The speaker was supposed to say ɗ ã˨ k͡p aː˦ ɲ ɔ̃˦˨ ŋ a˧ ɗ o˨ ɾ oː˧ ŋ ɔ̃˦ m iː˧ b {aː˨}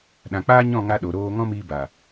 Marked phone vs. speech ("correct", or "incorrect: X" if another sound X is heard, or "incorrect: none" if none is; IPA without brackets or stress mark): correct